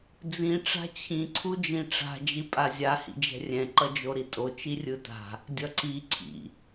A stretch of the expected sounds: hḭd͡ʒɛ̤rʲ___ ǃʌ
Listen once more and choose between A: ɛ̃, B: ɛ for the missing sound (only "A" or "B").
A